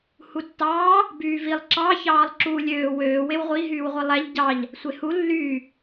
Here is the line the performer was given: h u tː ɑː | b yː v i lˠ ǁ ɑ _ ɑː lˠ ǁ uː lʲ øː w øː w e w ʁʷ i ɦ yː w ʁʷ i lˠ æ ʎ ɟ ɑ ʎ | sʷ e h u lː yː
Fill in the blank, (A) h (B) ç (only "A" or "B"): B